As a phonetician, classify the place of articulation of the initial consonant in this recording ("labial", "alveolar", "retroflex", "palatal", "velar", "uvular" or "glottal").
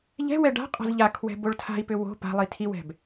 palatal